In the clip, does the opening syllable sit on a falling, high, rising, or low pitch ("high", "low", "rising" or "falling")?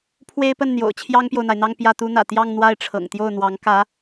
high